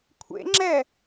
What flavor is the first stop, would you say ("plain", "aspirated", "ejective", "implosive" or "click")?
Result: aspirated